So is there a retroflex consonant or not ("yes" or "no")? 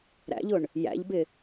yes